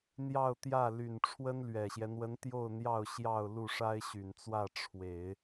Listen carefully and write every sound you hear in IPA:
n̪ j ɑ˥˧ ʊ̯ t̪ j ä˥˩ l y˨˩ n ʈ͡ʂʰ w ə˥ n l ɥ ɛ˨˩ ɕ j ɛ˦ n̪ w ə˧˥ n t̪ j o˥˧ ʊ̯ n̪ j ɑ˥˧ ʊ̯ ɕ j ɑ˥˧ ʊ̯ l u˥˩ ʂ a˥ ɪ̯ ɕ y˨˩ n t͡s w ä˥˩ ʈ͡ʂʰ w e˨˩˦ ɪ̯

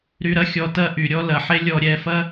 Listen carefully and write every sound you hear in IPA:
ɾ y˧ ɾ ɐ˦ xʲ ɔ˧ t ɐ˦ ʔ y˨ ɾʲ ɔ˦ l ɐ˨ ħ e˦ lʲ ɔ˧ ɾʲ ɛ˧ f ɐ˦

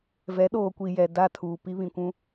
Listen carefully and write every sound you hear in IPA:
v ɛ˨˦ ɗ oː˨ kʷ i˨ j ɛ˨ d a˦˨ tʰ uː˨ p i˦ β ĩ˨ kʷ ũ˦

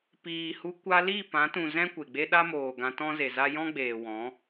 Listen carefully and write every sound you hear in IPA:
p iː˨ h u˧ kʷ a˧ l i˦˨ p ã˨˦ t ũ˨ z ɛ̃˦ kʷ e˨ ɡ͡b e˦ ɗ a˦ m oː˨ ɡ ã˧ t ɔ̃˦ z e˨ z a˦ j ɔ̃˦ ɡ͡b eː˨ w ɔ̃˨˦

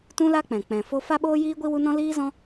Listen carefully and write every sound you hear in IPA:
t ũ˦ l a˦ k͡p ɛ̃˨ k͡p ɛ̃˨ f o˧ f a˦ ɓ oː˦ j iː˦ ɡʷ i˦ w u˦ n ɔ̃˦ l iː˦ z ɔ̃˦

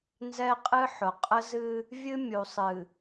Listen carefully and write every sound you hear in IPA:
n z ɛ˦ qʼ ɨ˦ ħ ʊ˨ qʼ ə˦ z ɨ˦ | vʲ ɨ˦ mʲ u˨ sˤ ɨ˨

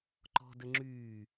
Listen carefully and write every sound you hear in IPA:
ǃ ɔ̤ d ə ŋ͡ǁ yː

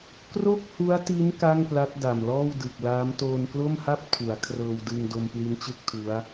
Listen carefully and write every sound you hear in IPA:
k r o˥˩ k̚ h u˦˥ a̯ t i˦˥ n k a˥˩ ŋ p l a˦˥ t̚ d a˨˩ m l ɔː˥˩ w d ɯ˨˩ k̚ l aː˦˥ m t oː˧ n k l o˥˩ m h a˥˩ p̚ tʰ u˩˦ a̯ kʰ r ɤː˧ w d ɯ˧ ŋ d o˧ m p l i˦˥ n t͡ɕ ɯ˥˩ k̚ tʰ u˦˥ a̯

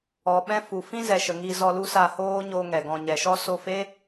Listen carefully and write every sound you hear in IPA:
ɔ˨ ɓ ɛ̃˦ f u˨ f ĩ˦ z ɛ˨ ʃ ə˨ ŋ i˧ z ɔ˧ l u˦ s a˧ h oː˦ ɲ oː˦ ŋ ɛ˨ ɡ ɔ̃˧ ɲ ɛ˨ ʃ ɔ˦ s o˧ f eː˦

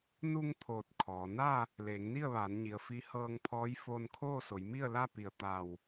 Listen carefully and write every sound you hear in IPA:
n u˧ ŋ t̪ʰ oː˧˩ t̚ kʰ ɔː˩˧ n a˥˨ | l eː˩˧ ŋ n i˥˨ ə̯ ʋ aː˩˧ n ɲ i˩ ə̯ f i˧˥ h ɤː˧ ŋ pʰ ɔː˧˥ j f oː˧ n kʰ oː˥˨ s o˩˧ j m i˥˨ ə̯ l a˥˨ p i˧˩ ə̯ t̪ a˧˩ w

